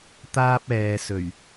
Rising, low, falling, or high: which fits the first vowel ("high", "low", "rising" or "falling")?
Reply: high